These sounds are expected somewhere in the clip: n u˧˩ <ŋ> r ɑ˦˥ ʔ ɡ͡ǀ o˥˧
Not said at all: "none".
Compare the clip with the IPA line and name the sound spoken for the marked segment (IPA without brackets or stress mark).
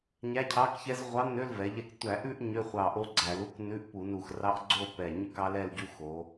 x